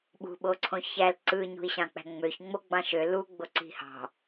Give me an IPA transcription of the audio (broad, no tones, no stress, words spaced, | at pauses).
ɓṳɓoǀʰõ çæl ǀɯ ɲṳi̯ɕɑ̃k͡pæ̤ŋ͡møç ŋ͡moɡ͡bɑ̃ʃø luɡ͡bo ǀi̤hɑ̤